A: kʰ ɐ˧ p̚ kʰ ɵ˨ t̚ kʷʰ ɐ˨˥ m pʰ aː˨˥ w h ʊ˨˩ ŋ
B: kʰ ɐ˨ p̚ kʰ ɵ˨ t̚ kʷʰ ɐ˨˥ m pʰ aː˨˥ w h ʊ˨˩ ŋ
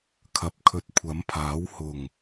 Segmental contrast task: B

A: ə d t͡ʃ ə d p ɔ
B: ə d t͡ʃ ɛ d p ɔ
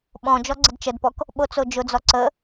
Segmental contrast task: A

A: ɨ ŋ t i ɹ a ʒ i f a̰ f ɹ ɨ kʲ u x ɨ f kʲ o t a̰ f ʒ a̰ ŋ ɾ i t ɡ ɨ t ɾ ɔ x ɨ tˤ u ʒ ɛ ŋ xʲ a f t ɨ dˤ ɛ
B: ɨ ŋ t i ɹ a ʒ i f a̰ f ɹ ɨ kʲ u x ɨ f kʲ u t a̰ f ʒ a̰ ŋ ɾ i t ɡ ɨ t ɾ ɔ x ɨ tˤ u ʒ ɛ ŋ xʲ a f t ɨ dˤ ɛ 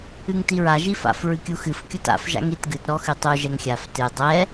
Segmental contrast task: A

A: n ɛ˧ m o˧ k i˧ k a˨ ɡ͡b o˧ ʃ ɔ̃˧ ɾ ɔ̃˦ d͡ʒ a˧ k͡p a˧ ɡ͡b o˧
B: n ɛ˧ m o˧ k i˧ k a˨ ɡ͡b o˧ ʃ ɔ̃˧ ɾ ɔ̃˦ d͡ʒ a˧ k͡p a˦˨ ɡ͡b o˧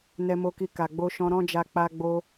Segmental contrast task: A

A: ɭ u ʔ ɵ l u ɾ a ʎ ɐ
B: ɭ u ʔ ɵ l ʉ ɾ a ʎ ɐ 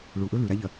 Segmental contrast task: B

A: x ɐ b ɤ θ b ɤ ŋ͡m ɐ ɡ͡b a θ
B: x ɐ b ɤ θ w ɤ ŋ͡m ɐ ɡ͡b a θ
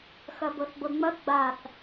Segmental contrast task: A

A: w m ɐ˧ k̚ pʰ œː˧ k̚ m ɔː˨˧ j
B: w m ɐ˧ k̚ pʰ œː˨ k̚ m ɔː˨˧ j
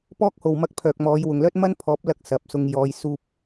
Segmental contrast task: B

